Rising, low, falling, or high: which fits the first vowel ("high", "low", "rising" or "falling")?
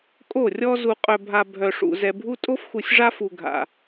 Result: falling